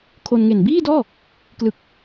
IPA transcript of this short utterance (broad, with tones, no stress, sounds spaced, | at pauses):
kʰ o˧ n ŋ e˨˩ n b iː˥˩ d ɔː˥˩ | k l ɯ˨˩ k̚